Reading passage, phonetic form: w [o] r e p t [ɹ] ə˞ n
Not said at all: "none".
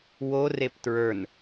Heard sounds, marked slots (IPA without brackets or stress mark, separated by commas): o, ɹ